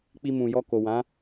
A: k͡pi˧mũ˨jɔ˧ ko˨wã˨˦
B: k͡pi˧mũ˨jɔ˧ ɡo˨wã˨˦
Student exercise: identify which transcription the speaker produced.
A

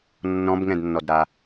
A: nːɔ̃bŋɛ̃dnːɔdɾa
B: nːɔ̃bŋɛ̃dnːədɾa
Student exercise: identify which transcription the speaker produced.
A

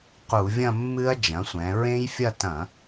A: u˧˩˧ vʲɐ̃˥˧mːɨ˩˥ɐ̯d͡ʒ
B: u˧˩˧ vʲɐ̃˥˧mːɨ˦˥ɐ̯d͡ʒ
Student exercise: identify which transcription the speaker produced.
B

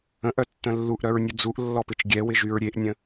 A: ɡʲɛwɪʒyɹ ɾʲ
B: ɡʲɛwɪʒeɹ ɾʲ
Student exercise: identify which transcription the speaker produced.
A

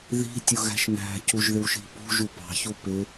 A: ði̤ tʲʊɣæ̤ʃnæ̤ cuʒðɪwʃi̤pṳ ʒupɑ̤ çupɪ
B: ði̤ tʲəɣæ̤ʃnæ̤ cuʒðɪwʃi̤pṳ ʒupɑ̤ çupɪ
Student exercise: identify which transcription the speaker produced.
A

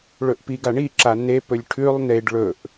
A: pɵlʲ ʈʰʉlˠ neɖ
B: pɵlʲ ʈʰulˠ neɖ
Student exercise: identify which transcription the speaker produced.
A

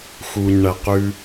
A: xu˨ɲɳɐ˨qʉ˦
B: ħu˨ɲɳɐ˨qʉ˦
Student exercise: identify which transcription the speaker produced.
A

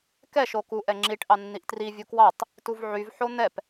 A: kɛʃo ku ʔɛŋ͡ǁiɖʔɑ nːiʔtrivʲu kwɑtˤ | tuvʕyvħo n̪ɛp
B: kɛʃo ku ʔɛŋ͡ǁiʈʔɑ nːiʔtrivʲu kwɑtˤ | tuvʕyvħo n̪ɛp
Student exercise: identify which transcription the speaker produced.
B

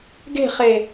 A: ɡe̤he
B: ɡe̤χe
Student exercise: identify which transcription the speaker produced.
B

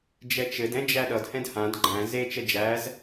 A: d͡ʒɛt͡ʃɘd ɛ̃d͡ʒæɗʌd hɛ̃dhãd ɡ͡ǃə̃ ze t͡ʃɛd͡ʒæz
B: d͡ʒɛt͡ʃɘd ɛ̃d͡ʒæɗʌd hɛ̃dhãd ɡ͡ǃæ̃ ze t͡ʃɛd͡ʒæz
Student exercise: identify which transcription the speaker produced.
B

